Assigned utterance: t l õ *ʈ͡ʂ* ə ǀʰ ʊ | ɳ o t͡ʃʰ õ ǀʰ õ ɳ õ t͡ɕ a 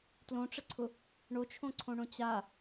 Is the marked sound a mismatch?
no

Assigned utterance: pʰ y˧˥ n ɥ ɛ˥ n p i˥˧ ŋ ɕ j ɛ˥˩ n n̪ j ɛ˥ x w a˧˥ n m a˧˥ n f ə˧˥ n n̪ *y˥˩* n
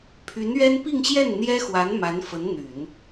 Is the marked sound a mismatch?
yes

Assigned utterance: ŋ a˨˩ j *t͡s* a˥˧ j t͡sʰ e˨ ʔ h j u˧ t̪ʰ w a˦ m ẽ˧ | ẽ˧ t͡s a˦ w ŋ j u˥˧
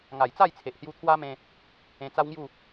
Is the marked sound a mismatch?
no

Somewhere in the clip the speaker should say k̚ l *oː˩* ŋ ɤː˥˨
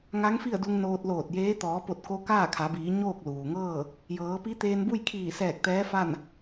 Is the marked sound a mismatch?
yes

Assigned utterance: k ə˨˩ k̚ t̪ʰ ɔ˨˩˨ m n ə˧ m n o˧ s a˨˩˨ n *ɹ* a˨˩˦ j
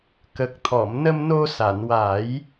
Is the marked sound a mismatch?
yes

